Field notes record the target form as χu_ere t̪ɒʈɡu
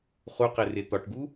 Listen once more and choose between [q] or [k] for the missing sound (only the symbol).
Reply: q